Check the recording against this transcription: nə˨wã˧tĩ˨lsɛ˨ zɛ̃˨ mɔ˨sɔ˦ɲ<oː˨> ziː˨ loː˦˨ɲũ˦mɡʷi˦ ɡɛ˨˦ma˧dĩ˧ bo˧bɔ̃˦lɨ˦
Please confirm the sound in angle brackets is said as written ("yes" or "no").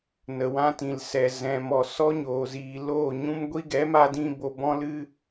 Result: yes